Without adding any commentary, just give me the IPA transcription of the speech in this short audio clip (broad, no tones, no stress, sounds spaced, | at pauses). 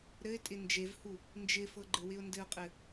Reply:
ɾ ɘ ɪ̯ tʼ ɪ n d͡ʒ e v h u | n d͡ʒ ɪ f ɤ ɡ͡ǃ ɘ w ɪ ʊ̯ n d ɘ ʊ̯ qʼ ɘ